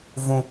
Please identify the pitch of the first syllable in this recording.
high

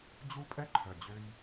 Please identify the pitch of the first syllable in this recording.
high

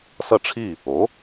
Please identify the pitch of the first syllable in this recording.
falling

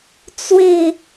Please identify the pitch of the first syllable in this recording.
falling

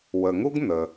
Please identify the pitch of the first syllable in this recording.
low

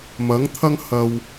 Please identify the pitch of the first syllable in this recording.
rising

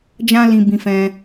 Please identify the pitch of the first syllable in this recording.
high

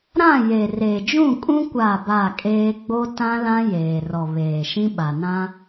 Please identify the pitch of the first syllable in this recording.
falling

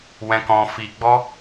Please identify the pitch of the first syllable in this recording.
high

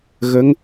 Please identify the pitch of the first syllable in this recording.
rising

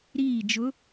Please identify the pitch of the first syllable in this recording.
falling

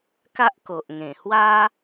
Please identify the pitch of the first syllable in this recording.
high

